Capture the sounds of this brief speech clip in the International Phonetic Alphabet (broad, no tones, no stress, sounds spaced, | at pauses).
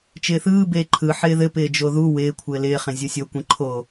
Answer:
t͡ʃ ɪː θ ɯː b eː ǃʰ ɯ ħ ɪː ð ɘ p ɪː d͡ʒ o ð u w ɪː kʷʰ ɘː l ɪː χ ẽ zʲ o sʲ o kʷ ẽ ǃʰ o